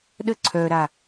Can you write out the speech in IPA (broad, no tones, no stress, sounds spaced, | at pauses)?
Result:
ɗ ə ǀʰ œ ɾ a